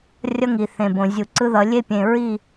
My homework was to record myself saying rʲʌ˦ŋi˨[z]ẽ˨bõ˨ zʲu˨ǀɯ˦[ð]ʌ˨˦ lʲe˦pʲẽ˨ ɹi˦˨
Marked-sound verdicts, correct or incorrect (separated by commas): incorrect, correct